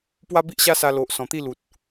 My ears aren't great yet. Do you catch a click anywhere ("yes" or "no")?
no